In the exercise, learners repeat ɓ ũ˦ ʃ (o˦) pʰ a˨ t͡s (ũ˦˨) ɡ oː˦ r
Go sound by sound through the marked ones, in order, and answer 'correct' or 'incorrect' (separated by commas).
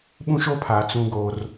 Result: correct, incorrect